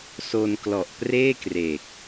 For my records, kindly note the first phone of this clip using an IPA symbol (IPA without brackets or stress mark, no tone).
s